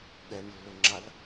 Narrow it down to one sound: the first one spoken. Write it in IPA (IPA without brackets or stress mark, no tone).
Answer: ɠ